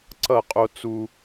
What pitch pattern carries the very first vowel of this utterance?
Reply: falling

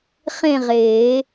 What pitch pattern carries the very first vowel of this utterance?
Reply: falling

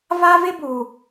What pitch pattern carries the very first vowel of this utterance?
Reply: high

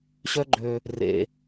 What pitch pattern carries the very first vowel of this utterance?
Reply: high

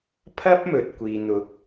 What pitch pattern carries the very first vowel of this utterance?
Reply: high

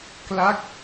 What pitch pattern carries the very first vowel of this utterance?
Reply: falling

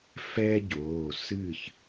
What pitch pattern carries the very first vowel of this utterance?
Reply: high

